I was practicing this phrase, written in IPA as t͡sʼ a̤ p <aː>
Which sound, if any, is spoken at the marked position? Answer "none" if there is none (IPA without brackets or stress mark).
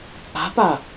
a